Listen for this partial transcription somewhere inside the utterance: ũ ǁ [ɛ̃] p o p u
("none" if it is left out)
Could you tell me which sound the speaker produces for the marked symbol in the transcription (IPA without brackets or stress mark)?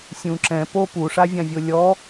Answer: ɛ̃